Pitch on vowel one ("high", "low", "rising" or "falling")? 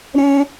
high